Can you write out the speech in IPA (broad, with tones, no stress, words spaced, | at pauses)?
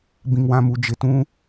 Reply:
bĩ˨ŋwã˨mu˨ d͡ʒɪ˨tũ˦